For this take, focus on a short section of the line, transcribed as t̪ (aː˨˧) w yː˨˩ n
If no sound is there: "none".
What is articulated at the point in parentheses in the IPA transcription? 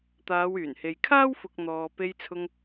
aː˨˧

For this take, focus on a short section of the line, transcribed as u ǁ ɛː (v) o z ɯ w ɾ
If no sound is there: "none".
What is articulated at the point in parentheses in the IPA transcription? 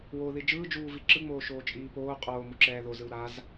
ð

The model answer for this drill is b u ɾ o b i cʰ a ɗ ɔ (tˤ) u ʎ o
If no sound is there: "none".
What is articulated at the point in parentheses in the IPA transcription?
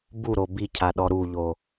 ɾ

